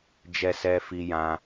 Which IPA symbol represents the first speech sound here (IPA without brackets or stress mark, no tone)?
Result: d͡ʒ